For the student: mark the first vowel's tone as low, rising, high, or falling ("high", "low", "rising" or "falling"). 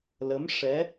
rising